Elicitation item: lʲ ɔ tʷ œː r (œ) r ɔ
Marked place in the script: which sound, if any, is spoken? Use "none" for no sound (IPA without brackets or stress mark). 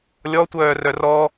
œ